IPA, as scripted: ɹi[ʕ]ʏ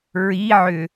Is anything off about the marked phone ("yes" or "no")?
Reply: no